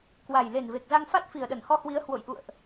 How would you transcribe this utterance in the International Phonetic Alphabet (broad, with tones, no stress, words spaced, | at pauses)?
kwa˨˩j le˨˩nve˨˩k̚za˧ŋfa˦˥t̚ fi˨˩ə̯ɗə˧˩nhɔ˧hwi˨˦ə̯ hwo̰˧˨jʔṵ˧˨ə̯ʔ